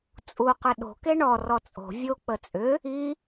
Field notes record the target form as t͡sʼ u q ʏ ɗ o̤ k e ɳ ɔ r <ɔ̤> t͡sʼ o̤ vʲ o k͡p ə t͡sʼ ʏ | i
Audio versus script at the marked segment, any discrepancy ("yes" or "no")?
yes